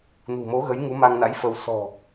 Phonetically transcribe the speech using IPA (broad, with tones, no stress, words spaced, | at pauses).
nṳ˨˩mo˨˦ɣə˨˦j ŋu˨˦ ma˧ŋna̰˧˥j fə˧w sɔ̤˨˩